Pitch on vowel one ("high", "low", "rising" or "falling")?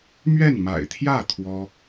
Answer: falling